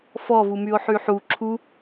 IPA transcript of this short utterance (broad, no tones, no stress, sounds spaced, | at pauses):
f ɔ v u m y o̯ ħ y ħ u ǁʰ u